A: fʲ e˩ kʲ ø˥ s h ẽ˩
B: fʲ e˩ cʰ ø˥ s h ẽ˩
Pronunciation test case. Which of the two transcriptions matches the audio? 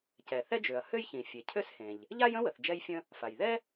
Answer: B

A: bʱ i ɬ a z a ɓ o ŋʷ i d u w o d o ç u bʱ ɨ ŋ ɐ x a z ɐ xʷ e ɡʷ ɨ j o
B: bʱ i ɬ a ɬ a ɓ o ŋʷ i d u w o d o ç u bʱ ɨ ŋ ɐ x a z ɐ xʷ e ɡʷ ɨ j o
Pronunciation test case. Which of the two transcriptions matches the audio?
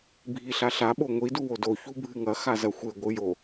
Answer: B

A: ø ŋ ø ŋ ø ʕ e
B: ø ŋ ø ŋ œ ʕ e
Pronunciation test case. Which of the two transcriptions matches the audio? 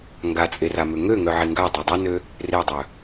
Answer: B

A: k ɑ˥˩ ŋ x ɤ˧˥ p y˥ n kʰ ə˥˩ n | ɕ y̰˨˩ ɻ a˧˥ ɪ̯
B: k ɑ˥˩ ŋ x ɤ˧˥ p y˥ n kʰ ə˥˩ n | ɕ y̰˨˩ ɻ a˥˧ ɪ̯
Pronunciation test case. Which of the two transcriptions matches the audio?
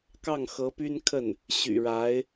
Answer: A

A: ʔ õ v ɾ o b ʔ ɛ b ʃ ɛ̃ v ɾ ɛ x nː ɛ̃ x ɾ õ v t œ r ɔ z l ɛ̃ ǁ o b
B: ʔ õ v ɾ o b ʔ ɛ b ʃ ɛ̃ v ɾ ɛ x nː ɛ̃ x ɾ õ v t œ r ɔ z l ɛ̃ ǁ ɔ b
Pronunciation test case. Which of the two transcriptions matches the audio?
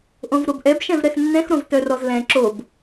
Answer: A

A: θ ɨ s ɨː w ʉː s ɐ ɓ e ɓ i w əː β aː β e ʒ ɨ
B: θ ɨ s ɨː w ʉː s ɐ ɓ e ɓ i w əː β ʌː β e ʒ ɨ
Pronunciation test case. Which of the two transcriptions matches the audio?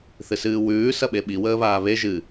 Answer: A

